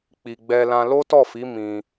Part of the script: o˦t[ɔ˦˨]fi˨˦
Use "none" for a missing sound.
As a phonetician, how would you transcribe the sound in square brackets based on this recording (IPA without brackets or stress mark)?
ɔ˦˨